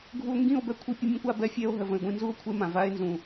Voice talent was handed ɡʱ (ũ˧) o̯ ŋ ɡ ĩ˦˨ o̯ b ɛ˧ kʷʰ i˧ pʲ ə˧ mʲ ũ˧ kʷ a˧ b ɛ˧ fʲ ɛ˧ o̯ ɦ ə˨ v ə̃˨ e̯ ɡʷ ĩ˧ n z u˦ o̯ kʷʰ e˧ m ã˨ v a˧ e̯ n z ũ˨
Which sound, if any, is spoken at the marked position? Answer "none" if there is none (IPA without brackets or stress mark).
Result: u˧